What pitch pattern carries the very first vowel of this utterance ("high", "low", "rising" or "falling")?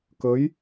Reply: rising